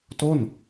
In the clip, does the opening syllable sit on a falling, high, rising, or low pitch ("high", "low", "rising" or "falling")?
falling